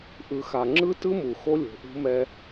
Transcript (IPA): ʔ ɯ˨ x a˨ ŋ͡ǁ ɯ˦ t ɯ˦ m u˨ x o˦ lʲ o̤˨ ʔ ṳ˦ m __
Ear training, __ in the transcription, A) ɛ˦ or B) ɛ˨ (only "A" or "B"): A